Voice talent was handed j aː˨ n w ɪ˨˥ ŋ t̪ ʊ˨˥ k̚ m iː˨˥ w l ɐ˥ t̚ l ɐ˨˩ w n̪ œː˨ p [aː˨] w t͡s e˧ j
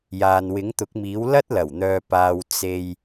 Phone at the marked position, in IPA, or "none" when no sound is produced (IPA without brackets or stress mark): aː˨